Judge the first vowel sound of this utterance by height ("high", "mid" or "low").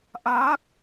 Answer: low